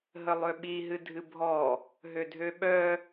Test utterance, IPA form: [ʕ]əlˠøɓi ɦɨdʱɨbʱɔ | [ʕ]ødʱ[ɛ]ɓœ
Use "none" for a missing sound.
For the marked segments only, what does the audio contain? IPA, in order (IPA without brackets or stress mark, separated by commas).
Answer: ɦ, ɦ, ø